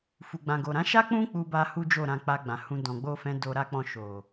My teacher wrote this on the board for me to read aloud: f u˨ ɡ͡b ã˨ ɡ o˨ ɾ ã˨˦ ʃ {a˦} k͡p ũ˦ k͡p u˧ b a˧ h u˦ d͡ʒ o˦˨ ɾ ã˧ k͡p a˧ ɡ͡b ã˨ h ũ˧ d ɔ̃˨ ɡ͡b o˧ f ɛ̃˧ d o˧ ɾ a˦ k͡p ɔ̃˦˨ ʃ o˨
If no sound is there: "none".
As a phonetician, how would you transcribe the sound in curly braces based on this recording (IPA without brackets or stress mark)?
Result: a˦